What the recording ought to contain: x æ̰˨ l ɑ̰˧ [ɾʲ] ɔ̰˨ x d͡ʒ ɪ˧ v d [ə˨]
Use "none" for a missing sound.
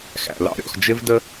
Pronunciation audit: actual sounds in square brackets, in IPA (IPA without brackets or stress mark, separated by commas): ɾʲ, ə˧